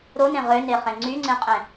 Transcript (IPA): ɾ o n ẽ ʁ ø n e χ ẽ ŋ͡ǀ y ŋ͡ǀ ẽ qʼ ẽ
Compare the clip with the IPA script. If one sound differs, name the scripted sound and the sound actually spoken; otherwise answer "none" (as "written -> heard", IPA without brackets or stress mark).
none